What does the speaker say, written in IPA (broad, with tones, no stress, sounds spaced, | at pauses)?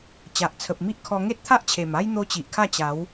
t͡ɕ a˨ ʔ t͡sʰ ə˨ p̚ m i˦ ʔ kʰ ɔ˧ ŋ e˦ t̚ t̪ʰ a˦ ʔ t͡ɕʰ e˨˩ m a˦ j n̪ o˦ t͡ɕ i˨ ʔ kʰ a˥˧ t͡ɕ a˨˦ w